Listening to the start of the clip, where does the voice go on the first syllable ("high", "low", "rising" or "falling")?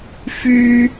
high